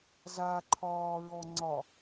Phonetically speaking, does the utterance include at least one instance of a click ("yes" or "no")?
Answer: yes